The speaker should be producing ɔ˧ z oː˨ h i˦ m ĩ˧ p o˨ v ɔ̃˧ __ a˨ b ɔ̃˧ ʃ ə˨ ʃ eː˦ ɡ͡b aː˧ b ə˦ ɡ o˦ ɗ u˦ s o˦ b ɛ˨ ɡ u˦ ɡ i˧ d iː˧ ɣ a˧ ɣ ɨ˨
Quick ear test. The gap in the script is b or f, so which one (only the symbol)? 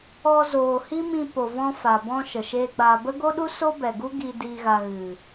f